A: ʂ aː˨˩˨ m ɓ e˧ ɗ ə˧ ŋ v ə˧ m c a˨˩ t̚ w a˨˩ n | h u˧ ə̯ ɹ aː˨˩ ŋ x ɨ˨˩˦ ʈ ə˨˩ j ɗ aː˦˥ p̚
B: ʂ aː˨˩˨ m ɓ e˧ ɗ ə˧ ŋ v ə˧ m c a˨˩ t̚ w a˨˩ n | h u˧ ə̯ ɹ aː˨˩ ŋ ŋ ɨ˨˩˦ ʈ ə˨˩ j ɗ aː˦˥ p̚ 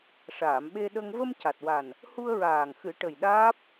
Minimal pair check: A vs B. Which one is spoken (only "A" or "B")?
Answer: A